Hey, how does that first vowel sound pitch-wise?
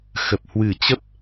low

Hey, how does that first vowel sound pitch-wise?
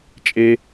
high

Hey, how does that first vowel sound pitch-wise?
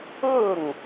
falling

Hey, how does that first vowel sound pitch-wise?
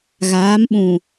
rising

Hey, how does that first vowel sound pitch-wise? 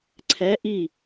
rising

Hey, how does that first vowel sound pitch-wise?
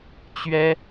high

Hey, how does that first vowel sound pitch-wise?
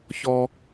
low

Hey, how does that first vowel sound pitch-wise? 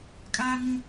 high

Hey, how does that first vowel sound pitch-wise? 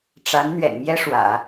rising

